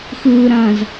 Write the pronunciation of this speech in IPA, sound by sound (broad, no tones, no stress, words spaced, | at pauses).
xɯːɾɐ̃ːz